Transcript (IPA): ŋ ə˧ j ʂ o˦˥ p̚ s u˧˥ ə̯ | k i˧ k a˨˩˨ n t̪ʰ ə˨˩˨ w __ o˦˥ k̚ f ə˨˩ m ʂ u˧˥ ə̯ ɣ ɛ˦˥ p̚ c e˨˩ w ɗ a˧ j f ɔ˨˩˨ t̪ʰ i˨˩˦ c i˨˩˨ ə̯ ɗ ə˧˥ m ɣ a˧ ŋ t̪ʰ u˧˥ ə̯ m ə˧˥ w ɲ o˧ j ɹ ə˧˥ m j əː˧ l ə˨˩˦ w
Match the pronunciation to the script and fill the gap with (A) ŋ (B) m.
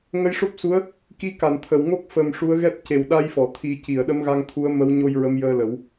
A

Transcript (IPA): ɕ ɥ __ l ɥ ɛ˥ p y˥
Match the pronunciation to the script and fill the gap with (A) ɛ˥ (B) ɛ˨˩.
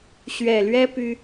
B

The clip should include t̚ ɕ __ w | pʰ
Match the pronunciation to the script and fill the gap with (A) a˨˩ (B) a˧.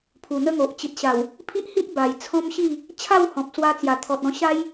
A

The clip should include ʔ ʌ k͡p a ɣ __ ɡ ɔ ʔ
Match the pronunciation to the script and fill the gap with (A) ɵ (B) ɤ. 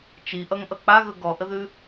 A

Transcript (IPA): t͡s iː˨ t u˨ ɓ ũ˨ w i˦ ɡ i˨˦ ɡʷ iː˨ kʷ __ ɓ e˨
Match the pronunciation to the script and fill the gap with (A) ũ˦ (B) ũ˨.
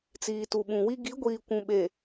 B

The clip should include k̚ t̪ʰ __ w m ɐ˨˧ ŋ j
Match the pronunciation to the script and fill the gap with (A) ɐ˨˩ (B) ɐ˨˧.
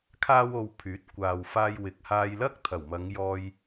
A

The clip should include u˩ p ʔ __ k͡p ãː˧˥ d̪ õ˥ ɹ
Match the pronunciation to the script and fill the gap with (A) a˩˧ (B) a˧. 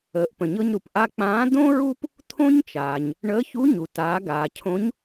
B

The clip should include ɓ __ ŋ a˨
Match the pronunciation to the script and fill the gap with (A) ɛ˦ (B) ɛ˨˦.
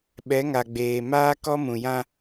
B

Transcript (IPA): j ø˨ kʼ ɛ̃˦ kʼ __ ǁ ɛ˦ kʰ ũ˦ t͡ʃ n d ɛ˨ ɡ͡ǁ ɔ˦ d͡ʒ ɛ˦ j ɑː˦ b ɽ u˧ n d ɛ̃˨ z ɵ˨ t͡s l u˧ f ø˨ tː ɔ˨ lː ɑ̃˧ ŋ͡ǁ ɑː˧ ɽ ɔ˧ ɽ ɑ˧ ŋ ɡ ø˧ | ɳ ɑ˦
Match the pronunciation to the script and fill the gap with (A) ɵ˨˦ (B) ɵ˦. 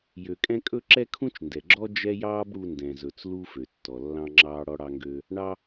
B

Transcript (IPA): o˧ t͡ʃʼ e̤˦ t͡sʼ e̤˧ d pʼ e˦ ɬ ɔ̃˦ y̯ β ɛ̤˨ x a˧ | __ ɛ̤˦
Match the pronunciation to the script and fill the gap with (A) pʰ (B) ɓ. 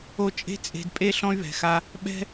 B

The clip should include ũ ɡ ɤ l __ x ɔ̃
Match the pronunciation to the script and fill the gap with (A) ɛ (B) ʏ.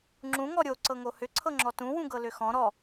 B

